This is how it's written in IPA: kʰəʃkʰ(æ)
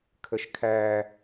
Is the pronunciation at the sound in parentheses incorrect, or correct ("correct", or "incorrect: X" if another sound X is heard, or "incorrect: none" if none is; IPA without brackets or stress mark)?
correct